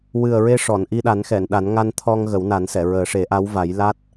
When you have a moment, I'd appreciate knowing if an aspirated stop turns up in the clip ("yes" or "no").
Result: yes